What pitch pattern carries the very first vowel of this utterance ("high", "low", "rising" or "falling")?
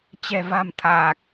low